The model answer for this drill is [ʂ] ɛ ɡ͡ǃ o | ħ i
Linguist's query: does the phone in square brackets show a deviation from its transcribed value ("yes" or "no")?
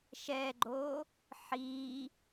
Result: yes